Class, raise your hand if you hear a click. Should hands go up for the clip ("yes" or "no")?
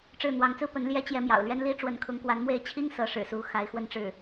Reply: no